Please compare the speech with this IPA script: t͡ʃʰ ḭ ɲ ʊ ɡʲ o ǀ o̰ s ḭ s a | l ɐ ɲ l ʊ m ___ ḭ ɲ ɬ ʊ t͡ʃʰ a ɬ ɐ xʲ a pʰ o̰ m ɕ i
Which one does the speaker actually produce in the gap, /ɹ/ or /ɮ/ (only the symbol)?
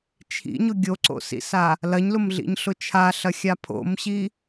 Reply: ɮ